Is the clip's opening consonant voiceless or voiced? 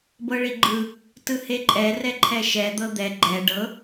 voiced